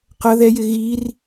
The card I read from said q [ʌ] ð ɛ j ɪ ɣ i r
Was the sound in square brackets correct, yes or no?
yes